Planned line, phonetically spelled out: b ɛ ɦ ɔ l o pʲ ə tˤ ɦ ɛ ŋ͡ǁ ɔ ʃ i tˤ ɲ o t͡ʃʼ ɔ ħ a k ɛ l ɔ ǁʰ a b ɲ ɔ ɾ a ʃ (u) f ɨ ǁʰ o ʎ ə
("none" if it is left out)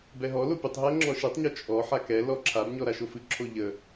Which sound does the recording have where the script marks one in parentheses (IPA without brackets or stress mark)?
o